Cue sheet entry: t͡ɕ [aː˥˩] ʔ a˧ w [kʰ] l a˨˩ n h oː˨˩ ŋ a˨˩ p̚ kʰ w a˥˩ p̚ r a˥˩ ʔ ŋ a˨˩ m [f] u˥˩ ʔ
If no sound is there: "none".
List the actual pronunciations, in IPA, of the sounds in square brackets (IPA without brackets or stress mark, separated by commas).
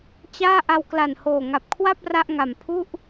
aː˥˩, k, pʰ